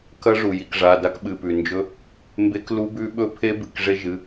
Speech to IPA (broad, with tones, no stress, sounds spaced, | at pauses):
k ɐ˦˥ ʐ u˩ j i˩ k ʐ a˩˧˩ d a˦˥ k ɓ ɨ˩˧˩ p ʉ˩ n d͡ʒ ɵ˦˥ | m b e˦˥ k l u˦˥ b ʉ˦˥ ɓ ɵ˦˥ pʰ e˦˥ b ɨ˩ k ʐ e˦˥ ʒ ɨ˩˧˩